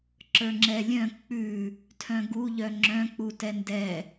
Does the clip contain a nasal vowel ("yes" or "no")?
yes